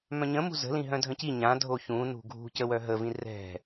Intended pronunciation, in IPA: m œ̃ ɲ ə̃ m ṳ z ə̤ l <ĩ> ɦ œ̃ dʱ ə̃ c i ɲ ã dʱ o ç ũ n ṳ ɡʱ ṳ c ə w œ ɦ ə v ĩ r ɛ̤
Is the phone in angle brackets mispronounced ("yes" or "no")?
no